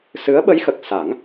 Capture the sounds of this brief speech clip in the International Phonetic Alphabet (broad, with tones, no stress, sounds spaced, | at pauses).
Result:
s ɨ˧˥ ə̯ ɓ ə˧˥ j x ə˨˩ k̚ s a˨˩˦ ŋ